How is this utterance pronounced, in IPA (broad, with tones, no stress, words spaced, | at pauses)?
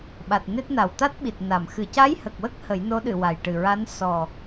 ɓa˨˩t̚ ne˦˥t̚na˨˩w t̪a˦˥t̚ɓi˨˩t̚ na˨˩˨m xɨ˨˩˨ca˧˥jhə˨˩k̚wə˦˥k̚ hə˨˩˦jno˧˥ɗɨ˨˩˨ wa˨˩jʈɨ˨˩ɹa˧˥n sɔ˨˩